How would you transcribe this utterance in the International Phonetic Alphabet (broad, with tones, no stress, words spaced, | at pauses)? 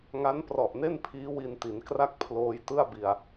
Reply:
ŋa˦˥nprɔ˨˩ʔne˥˩npʰiː˦˥ wi˧nti˩˦nkra˥˩k̚ pʰloː˧jtɯ˥˩a̯bi˧a̯